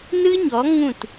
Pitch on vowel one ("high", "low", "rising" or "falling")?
high